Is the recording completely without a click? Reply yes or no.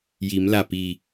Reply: yes